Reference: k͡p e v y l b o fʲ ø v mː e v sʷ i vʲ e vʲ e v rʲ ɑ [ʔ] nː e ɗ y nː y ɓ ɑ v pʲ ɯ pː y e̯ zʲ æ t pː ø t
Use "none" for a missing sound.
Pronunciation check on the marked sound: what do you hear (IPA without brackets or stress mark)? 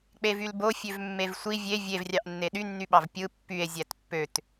ʔ